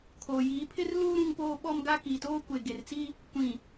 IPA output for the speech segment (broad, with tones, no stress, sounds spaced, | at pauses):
kʰ oː˨ j iː˨˦ pʰ ɪ˦ r l uː˦ ɾ ũ˦ ŋ p oː˦ ɓ ɔ˦ m ɡ a˦ k iː˨ t oː˦ kʷ e˨ ɡ e˨ r t͡s i˦ | kʷ ĩ˨